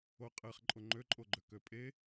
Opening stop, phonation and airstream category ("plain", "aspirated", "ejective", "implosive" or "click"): ejective